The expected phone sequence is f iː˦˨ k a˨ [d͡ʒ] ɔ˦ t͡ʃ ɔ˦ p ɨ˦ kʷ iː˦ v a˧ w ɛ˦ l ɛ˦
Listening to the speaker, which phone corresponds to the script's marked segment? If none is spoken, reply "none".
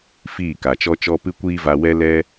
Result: t͡ʃ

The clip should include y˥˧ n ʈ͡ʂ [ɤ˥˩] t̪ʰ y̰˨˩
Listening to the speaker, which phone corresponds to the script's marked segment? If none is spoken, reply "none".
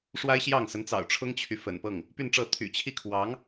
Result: ɤ˥˩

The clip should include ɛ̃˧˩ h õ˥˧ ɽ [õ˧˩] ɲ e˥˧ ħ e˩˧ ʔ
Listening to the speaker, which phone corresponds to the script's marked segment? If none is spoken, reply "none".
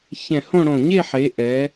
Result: õ˧˩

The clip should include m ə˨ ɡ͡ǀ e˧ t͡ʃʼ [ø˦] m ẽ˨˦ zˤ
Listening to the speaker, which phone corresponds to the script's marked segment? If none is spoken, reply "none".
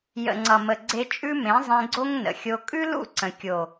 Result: ʉ˦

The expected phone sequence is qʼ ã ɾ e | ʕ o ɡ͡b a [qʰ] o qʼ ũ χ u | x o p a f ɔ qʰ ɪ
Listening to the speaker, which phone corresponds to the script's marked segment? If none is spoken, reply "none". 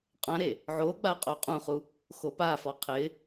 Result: qʼ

